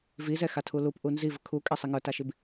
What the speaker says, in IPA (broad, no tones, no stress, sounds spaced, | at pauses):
v i z ɛ x a tʰ u l u p ʔ u n z i v ə kʰ u kʼ ɛ sˤ i ŋ ə˞ t a ʃ i b